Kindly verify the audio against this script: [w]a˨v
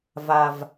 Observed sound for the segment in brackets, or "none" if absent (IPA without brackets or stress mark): v